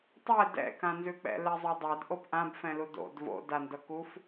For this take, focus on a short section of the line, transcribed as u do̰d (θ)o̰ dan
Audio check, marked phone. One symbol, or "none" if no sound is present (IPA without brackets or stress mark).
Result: v